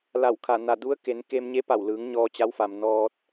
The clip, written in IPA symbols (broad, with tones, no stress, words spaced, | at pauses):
la˧˩wkʰa˧˩ na˧˩ du˧˥ə̯ke˩˧n ke˧mɲe˧˥pa˧˩wlɯː˩˧ŋ ɲɔː˧t͡ɕa˧˥wfa˩m nɔː˧t̚